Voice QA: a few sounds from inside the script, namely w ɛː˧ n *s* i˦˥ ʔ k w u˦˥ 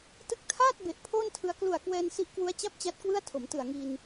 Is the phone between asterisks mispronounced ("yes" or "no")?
no